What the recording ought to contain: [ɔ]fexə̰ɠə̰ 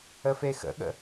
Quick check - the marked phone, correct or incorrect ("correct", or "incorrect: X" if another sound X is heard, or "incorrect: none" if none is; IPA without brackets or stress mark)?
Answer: incorrect: ə